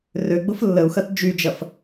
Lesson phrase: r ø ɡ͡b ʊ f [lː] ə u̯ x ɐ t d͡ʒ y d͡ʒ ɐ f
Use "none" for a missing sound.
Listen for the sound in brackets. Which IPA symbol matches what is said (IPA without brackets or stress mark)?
lː